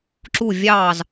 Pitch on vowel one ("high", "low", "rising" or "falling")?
falling